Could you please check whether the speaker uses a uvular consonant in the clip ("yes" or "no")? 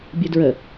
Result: no